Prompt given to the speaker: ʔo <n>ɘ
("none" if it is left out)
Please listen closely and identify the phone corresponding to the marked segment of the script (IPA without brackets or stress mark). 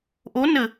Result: n